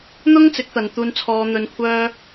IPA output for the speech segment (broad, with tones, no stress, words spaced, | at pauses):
n̪ʊ˥ŋt͡sɪ˨˥k̚t̪ɐ˨n t̪uː˧nt͡sʰɔː˧n̪ɵ˧n kʷʰœː˥